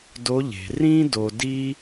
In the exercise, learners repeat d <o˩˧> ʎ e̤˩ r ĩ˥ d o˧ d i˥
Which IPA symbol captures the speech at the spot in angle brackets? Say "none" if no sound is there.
o˧˥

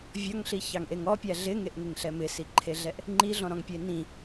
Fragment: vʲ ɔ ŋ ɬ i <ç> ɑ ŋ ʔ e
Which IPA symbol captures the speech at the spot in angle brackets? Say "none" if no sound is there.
ç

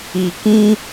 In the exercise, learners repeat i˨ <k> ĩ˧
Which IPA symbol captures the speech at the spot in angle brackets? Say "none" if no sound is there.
k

